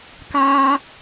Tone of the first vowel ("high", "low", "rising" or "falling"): high